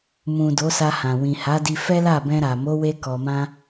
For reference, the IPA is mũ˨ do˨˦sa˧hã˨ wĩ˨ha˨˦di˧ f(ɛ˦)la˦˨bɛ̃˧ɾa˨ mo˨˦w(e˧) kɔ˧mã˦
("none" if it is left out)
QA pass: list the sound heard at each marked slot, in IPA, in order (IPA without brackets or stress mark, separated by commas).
ɛ˦, e˧